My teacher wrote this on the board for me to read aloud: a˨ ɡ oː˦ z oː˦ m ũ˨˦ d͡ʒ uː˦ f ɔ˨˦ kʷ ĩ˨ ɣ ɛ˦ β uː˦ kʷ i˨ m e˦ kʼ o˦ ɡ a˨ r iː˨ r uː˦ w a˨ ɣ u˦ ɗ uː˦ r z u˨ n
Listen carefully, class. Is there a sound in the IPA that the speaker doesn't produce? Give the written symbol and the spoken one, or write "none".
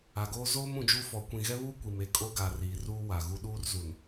none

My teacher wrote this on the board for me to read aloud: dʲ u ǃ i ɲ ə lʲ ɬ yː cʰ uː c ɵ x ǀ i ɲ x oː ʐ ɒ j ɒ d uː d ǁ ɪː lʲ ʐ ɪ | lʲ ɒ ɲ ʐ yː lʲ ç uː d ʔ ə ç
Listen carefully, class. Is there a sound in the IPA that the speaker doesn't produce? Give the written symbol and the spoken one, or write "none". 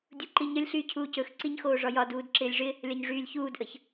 none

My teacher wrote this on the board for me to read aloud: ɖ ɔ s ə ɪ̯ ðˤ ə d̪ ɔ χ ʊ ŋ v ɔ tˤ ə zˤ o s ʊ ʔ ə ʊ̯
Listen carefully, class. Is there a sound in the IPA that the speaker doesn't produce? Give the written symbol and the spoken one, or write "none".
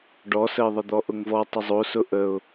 χ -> ʔ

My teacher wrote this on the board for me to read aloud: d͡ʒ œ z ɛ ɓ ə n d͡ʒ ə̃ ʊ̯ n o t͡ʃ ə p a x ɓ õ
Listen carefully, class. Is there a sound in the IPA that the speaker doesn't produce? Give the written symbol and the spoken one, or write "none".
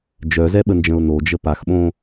t͡ʃ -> d͡ʒ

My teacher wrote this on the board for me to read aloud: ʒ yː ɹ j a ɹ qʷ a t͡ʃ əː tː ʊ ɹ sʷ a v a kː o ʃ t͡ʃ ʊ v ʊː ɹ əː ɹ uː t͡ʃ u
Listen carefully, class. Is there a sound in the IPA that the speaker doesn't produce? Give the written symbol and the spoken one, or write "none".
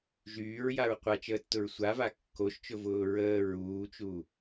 none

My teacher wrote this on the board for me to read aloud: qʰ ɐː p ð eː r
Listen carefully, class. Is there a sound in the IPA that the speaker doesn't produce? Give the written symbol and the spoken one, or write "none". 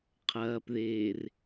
none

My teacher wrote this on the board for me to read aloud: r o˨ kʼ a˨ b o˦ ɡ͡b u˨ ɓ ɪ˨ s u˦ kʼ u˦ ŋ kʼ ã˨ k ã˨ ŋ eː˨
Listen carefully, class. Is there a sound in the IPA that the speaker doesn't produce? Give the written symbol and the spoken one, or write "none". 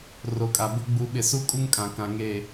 none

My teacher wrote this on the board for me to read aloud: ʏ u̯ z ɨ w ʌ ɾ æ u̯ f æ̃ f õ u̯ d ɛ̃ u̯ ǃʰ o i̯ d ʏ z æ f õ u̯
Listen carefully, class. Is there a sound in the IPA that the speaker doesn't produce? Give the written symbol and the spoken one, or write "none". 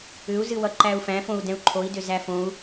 ɾ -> ǃ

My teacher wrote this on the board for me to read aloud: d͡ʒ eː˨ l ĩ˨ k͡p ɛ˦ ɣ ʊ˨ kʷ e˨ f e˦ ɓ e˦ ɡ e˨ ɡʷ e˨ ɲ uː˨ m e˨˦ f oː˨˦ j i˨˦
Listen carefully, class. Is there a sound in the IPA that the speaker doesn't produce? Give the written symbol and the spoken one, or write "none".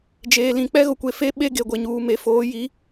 none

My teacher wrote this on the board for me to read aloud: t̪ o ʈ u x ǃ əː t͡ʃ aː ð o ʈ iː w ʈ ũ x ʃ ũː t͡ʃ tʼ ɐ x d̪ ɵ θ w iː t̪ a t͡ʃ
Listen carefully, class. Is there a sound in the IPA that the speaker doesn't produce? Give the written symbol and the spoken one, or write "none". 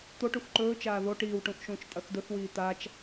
əː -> ɵː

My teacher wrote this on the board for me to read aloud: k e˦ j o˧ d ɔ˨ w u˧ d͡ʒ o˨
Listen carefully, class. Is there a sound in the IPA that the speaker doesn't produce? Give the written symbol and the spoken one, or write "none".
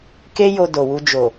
ɔ˨ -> o˨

